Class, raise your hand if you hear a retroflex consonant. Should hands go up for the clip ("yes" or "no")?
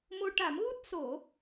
yes